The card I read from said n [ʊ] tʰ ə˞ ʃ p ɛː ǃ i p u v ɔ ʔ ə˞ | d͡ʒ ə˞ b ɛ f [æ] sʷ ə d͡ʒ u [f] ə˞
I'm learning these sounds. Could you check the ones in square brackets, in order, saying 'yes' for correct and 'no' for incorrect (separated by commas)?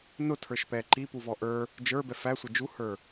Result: yes, yes, no